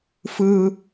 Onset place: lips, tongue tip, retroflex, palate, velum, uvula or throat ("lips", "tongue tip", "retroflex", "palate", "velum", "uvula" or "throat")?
lips